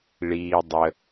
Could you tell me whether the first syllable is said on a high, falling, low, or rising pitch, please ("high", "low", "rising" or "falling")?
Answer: low